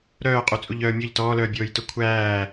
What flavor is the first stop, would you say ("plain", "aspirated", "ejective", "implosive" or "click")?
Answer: ejective